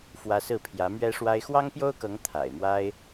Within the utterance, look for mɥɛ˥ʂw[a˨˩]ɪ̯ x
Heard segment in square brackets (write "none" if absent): a˥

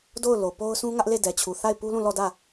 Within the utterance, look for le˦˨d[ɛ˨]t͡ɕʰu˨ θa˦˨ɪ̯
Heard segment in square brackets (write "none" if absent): ɛ˨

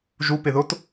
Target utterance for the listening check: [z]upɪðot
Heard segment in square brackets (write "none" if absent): ʒ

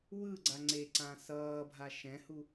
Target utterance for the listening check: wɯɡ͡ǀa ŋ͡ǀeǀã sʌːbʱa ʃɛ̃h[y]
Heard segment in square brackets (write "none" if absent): u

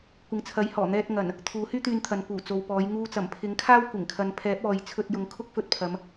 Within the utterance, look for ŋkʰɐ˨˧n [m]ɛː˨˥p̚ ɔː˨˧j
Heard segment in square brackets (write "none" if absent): pʰ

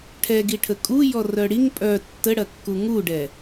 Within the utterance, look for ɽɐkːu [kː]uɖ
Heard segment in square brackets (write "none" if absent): ŋ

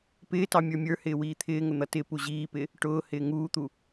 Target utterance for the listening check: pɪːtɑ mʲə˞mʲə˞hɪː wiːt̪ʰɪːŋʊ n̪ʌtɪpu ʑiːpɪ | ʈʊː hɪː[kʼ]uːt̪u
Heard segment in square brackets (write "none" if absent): ŋ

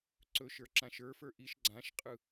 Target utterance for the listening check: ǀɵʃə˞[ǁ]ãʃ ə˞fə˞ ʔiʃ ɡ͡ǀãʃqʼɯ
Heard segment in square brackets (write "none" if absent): ǁ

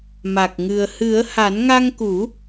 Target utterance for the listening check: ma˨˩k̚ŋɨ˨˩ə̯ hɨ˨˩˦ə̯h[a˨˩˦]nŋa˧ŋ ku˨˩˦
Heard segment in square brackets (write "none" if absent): a˨˩˦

